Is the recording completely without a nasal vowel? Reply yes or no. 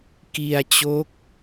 yes